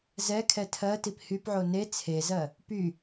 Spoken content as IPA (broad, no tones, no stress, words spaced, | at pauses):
zɛkʰɛ tʰɜtip hypʕo ne t͡sʰezɜ | py